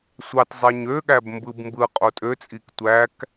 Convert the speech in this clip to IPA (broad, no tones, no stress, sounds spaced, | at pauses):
sʷ ɑ t zˤ e ɲ ø ɠ æ b m b ɯ b m b ɯ qʼ o tʼ ø t͡sʼ i k tʷ æ k